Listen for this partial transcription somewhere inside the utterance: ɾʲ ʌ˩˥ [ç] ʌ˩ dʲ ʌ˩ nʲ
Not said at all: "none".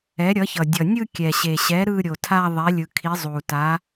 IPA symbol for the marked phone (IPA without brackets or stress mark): ç